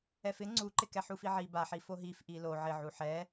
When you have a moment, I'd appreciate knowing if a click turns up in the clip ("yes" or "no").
yes